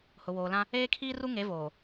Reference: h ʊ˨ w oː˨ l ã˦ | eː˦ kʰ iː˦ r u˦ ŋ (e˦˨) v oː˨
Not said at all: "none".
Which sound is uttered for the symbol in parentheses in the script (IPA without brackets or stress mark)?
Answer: e˨˦